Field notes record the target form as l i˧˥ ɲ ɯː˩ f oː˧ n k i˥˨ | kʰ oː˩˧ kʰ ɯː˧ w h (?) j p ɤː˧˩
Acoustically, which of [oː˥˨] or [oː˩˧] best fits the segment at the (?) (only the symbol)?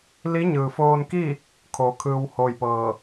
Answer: oː˥˨